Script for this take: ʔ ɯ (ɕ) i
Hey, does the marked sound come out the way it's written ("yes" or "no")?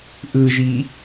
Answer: no